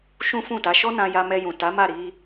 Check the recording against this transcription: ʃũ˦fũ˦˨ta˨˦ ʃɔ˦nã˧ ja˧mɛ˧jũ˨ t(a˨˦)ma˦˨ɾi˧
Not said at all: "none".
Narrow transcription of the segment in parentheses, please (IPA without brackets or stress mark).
a˨˦